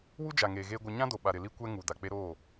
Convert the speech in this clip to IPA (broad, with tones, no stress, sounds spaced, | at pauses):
w u˦ d͡ʒ a˨ ŋ eː˨ ɣ eː˦ ɡʷ ɪ˦ ɲ ã˦ d o˨ ɓ a˨ ɾ ɪ˨ l i˦ kʷ ɛ˦ ŋ u˨ d a˨ k͡p e˦ ɾ oː˦˨